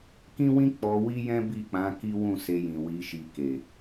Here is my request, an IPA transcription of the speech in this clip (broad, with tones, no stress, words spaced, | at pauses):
kĩ˦wĩ˦ k͡pɔ˧ wi˦jɛ̃˦ bi˦˨k͡pã˨˦ ki˦wũ˦˨ se˧jĩ˨ wi˨˦ʃi˧ ke˨